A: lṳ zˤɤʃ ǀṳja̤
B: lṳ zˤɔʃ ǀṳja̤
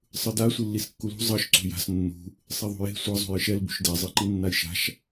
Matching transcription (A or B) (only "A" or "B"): A